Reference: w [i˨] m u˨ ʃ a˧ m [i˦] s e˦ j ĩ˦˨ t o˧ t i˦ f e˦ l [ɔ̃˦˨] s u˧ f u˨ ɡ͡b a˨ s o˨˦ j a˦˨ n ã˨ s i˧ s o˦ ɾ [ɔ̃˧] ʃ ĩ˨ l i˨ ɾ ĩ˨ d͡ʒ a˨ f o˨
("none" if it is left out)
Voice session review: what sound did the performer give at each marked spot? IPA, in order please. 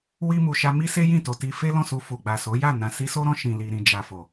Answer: i˧, i˦, ɔ̃˦˨, ɔ̃˧

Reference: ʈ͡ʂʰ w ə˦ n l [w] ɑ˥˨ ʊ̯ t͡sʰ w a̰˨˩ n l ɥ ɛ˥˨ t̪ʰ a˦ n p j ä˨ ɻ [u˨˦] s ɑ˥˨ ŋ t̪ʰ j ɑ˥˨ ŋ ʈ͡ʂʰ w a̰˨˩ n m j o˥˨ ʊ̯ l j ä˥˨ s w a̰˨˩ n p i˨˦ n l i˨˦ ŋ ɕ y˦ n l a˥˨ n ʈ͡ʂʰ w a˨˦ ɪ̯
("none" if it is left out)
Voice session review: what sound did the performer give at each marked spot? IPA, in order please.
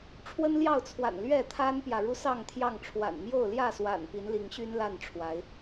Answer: j, u˦

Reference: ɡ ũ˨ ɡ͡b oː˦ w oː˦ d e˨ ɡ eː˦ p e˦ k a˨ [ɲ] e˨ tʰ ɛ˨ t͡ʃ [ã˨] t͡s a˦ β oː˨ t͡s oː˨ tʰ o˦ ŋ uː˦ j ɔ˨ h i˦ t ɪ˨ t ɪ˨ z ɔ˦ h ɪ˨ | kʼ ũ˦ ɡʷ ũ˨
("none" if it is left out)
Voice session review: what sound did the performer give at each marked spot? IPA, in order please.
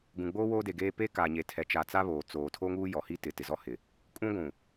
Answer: ɲ, a˨

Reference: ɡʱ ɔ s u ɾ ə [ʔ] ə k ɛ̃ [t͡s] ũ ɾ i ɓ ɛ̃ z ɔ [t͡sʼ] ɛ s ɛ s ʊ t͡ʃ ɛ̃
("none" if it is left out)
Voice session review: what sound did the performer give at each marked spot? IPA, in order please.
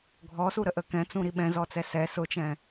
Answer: ʔ, t͡s, t͡s

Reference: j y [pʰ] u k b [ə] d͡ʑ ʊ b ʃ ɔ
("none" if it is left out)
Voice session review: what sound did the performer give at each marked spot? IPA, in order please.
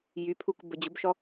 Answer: pʰ, ə

